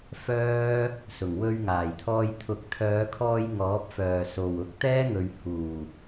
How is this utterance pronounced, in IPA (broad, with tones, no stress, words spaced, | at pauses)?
fœː˥ | sʊ˨˩ŋwɵ˧ɥŋaː˨˩jt̪ʰɔː˧j t̪ʰʊ˨˥k̚t̪ʰœː˨˧kʰɔː˧j ŋɔː˨˥p̚fœː˨˩so˨˩w ʊ˨˥k̚t̪ɛː˥ŋɵ˨ɥ huː˨˩